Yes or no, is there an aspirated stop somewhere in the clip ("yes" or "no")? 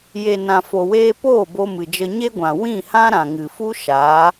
no